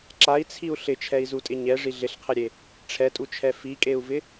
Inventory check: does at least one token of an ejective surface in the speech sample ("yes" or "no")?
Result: yes